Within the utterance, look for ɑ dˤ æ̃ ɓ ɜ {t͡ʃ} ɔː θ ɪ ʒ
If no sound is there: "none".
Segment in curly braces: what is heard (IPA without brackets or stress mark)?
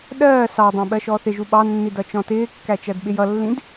ʃ